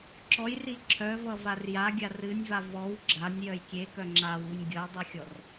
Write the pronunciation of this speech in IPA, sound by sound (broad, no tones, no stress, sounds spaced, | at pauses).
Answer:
ǁ ɔ j r i ǁʰ œ v ʌ v a r j a ɡʲ a r ɨ nʲ v a v ɔ w ɡ͡ǁ a nʲ j œ j kʲ e k œ ŋ͡ǁ a w u nʲ ɡʲ ʌ j dˤ ɨ xʲ ɔ r